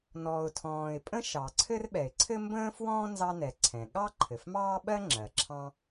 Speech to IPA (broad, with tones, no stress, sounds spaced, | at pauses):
n ɔː˩ ʊ̯ tʰ ɔ̃ː˩ ɪ̯ pʼ ə̃˥ ʃ ɑ˩ ǀʰ ɘ˥ r ɓ ɛ˩ ɪ̯ ǀʰ ɘ˥ m b ə̃ː˥ f w ɔ̃ː˥ n z ɑ˥ n ɛ˩ ǀʰ ɛ̃˩ ɠ ɑ˥ ǃʰ ɘ˩ f m ɑː˥ ɓ ɜ˥ ŋ͡ǁ ɜ˩ ǁʰ ɑ̃˥